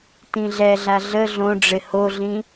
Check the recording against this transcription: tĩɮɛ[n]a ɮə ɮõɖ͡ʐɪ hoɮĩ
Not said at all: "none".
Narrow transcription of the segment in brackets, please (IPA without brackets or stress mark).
ɮ